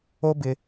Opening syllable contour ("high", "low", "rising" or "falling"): high